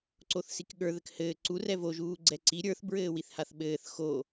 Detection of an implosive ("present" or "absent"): present